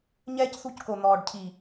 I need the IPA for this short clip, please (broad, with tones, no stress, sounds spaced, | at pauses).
ɲ ɛː˦ c θ ṳ˦ c k o˨ n̪ ɔː˨ ɖ cʰ i˨